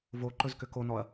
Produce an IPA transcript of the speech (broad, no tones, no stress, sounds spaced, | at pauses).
v o ǃ ɵ z k ʏ k o n ɔ ɐ̯